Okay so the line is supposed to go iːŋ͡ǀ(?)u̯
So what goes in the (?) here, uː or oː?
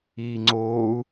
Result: oː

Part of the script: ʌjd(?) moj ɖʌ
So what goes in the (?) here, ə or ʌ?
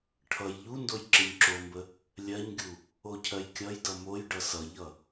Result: ʌ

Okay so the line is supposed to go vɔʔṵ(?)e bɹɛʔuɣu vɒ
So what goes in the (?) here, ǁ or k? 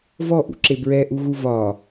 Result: ǁ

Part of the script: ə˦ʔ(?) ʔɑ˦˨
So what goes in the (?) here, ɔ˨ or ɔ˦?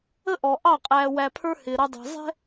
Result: ɔ˨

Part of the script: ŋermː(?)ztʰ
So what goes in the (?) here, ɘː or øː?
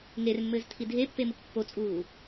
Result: ɘː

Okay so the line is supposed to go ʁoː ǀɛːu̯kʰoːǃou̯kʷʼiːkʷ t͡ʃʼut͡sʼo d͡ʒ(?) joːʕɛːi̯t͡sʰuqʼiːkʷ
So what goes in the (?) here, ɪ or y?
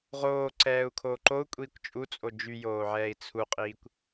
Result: y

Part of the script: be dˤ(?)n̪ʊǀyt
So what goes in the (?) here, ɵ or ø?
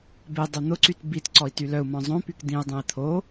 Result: ø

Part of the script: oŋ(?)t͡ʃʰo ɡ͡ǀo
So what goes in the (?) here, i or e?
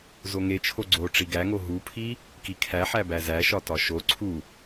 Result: e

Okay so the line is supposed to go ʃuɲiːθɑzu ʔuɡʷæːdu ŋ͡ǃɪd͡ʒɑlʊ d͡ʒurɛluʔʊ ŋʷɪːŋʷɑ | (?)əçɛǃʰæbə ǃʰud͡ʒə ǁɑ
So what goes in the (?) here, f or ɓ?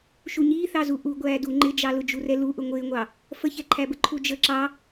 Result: f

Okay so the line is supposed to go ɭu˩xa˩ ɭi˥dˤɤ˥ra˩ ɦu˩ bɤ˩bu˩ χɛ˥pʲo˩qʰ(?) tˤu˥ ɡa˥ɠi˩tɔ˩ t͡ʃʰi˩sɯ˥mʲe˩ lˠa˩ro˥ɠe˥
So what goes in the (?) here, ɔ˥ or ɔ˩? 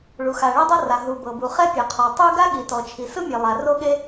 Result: ɔ˩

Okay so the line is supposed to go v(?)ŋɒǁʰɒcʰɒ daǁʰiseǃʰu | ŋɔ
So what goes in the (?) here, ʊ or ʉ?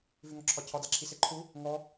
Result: ʉ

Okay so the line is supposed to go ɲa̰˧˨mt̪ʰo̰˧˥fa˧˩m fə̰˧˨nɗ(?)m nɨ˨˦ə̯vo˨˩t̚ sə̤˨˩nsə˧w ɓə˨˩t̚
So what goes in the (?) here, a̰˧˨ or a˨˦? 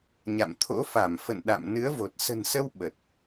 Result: a̰˧˨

